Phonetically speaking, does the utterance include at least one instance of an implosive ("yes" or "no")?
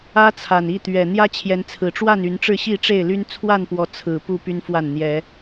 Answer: no